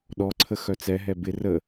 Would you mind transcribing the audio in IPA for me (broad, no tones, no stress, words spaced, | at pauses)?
ɗɔǀʰə xœt͡sɛɦɛ bɪ rə